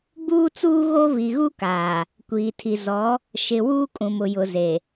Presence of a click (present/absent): absent